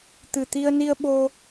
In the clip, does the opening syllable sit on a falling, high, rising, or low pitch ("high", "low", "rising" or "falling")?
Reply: low